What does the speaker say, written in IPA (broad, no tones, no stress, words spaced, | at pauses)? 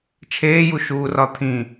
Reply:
t͡ʃʰeːju ʃuːrɒt̪ʰĩ